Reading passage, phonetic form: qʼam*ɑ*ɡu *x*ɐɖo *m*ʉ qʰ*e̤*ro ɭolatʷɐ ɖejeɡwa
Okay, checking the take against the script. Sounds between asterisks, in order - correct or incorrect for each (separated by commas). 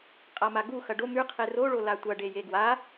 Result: incorrect, correct, correct, incorrect